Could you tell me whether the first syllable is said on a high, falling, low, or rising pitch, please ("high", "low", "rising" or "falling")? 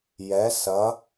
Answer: rising